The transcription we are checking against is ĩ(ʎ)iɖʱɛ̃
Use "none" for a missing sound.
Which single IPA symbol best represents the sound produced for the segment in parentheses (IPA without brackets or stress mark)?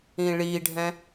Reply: ɭ